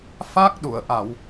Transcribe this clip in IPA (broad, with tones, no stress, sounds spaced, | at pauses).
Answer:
f a˦˥ k̚ ɗ u˨˩˨ ə̯ ʔ a˨˩˨ w